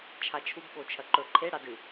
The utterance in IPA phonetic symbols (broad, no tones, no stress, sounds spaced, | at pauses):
t͡ʃʰ a t͡ʃʰ u b ɓ o t͡ʃʰ ɐ ǃ ɵ ǃʰ e ɽ a d ɨ